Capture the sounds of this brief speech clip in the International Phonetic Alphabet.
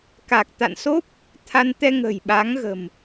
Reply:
k a˨˩ k̚ t̪ a̰˧˨ n s o˦˥ p̚ | t̪ʰ a˧ n t̪ ɛ˧ ŋ ə̤˨˩ j ɓ a˨˦ ŋ ɣ ə̤˨˩ m

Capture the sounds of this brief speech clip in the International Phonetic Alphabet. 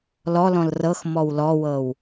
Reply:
l ɔ l ɔ̃ l r ɤ x m ɔ w l ɔ w ɤ w

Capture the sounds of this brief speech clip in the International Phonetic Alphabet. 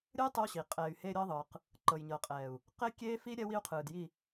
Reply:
ɾʲ ɯ˦ j tˤ ɯ˦ w ɕ i˨ qʼ ɛː˨ y̯ h e˦ ɾʲ ɤ˦ ðˤ ɯː˨ q | ǃ ɤ˨ j ɲ ɤ˨ qʼ ɛː˨ u̯ | q e˦ kʲ eː˦ f i˦ ɾʲ ɛ˦ w i˦ u̯ qʰ ɯː˨ d j i˦˨

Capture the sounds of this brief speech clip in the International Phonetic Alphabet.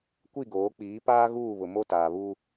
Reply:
kʷ i˦˨ ɡ oː˨˦ k͡p iː˨˦ p aː˦ ɣ uː˦˨ β ʊ˨ m o˦ t aː˨ β u˦

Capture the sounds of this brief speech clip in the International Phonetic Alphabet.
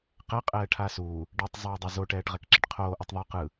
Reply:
q ɛ qʼ ɛː ʈʰ aː s uː | ɖ e tˤ zˤ ɛː dˤ e z o ʈ ɛː ʈ ʁ ɛ k ǁ i ʈ qʰ oː ʔ o tˤ ðˤ o q ɯ

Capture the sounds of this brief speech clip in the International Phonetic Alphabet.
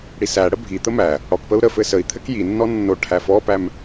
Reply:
ɽ i s æ ɽ ə bʱ i t̪ ə m æ | ɽ ɔ k p ə u̯ ɾ ə f ɘ s ə i̯ t̪ʰ ɘ k j i nː ɔ nː o ʈʰ æ f ɔ p æ m

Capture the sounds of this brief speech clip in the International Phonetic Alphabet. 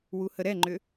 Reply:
w u h ə ɾ ɛ ŋ͡ǃ ʏ

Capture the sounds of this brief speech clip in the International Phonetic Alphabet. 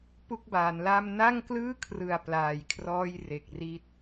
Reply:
p u˥˩ k̚ b aː˩˦ n l a˥˩ m n a˥˩ ŋ k l ɯː˥˩ kʰ r ɯ˨˩ a̯ p l aː˨˩ j kʰ r ɔː˥˩ j r e˨˩ k̚ r i˦˥ t̚

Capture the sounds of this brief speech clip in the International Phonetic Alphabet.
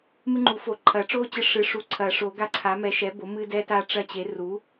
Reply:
m ɨ˦ ŋ͡ǃ u˨˩˦ f o˨˩˦ ǃʰ ɐ˨˩˦ ʈ͡ʂ o˦ t͡ɕ ɨ˦ ʂ ɨ˩˥ ʂ u˨˩˦ ǀʰ ɐ˨˩˦ ʂ o˨˩˦ ɡ a˦ ǀʰ a˩˥ m ɛ˩˥ ʃ ɛ˩˥ b o˩˥ m ɨ˦ d ɛ˦ t a˦ ʈ͡ʂ ɐ˦ t͡ɕ e˩˥ r u˩˥

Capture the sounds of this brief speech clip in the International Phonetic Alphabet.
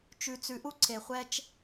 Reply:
t͡ʃ ʉ˧ t͡s ʉ˧ ʔ u˥ ǀʰ e˧ χʷ ɛ˥ t͡ʃ

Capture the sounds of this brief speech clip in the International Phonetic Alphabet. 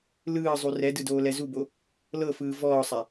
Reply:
l ɯː zˤ u r ɛ d ɯ d oː l ɛ z u b o | l ɤ f ɯː v ɔː sˤ a

